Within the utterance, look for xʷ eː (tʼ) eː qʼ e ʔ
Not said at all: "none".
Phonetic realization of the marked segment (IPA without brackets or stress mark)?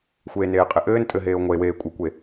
n